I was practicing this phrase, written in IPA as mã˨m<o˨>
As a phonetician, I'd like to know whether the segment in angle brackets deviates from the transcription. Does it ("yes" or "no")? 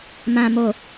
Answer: no